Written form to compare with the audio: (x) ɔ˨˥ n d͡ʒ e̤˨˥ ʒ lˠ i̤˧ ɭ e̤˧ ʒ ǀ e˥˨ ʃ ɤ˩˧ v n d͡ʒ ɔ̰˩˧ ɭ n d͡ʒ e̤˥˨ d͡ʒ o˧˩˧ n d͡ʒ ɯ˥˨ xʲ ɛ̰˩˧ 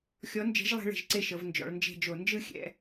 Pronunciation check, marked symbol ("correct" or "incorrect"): incorrect